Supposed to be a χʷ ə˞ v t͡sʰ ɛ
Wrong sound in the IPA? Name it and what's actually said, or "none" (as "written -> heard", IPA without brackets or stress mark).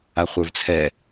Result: none